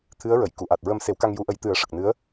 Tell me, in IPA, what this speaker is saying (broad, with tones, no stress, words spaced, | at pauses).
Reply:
t̪ʰɨ˧˥ə̯ɹə˨˩˨j ku˨˩˨ʔa˨˩t̚ɹə˧m se˨˩˦wka˧ŋju˨˩˦ʔə˨˩˦j t̪ɨ˨˩˦ə̯ʂə˨˩k̚nɨ˧˥ə̯